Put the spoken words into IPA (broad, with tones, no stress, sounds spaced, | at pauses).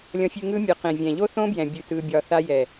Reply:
lʲ ɔ̃˧ fʲ ʉ˧ ŋ ɯ˦ mʲ ɯ˨ q ẽ˨ vʲ ɛ̃˨ ʎ o˦ θ õ˦ b j ɛ̃˨ bʲ ʉ˨ t ɯ˧ bʲ ɒ˧ θ a˧ j ɛ˨